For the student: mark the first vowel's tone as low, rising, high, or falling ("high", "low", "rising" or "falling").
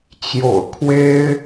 low